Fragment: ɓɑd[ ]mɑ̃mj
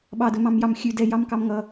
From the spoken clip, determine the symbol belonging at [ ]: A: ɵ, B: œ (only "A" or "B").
A